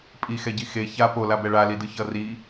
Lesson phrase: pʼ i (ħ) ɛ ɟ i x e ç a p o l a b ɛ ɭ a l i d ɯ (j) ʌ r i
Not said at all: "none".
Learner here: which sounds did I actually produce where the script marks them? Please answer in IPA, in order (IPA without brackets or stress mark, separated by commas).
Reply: x, ç